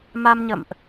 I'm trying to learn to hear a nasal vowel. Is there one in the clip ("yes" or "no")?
no